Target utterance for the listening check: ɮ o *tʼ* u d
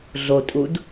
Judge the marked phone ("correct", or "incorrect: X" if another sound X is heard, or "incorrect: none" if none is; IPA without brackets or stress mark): correct